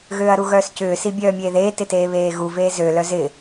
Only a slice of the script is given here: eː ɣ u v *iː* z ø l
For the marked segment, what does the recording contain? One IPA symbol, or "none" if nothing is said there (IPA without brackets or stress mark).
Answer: eː